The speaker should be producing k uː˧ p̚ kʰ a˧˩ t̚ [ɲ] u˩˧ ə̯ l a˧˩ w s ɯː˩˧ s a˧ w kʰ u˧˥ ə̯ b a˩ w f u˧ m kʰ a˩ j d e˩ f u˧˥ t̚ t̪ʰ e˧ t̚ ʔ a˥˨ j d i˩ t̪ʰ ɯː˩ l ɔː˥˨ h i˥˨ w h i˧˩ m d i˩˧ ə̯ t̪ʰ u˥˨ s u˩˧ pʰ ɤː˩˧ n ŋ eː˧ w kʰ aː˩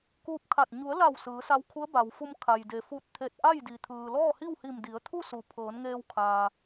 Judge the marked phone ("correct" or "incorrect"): correct